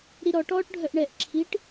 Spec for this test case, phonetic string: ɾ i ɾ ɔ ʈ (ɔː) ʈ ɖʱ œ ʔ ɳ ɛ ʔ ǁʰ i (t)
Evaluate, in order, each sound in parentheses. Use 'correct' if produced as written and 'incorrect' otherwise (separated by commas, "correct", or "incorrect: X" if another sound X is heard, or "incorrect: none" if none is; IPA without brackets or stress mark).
correct, incorrect: ʈ